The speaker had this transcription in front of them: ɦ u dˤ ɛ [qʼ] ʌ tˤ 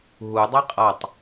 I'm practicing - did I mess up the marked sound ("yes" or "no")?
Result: no